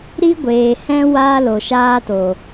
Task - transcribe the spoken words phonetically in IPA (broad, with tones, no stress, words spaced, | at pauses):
ɾi˦ɡʷeː˨hɛ̃˦ wa˦ lo˨ʃaː˦to˨